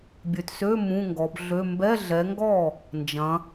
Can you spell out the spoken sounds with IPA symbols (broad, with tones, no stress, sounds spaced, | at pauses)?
bʲ ø˨ t s ø˧˥˧ m ũ˧˥˧ ŋ ɡ ɔ˨˦ b ɮ ø˧˥˧ m b ɛ˧˥˧ ɮ ɛ˨˦ ŋ ɡ ɔ˥˩ | n d͡ʒ ɐ̃˨˦